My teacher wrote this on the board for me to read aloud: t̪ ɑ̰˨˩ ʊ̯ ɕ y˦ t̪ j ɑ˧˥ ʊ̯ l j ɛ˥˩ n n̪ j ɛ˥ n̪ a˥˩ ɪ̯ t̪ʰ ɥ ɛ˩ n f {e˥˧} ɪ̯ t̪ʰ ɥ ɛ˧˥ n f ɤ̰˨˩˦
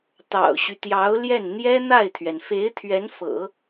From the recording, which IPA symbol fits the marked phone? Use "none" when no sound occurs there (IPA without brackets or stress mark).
e˧˥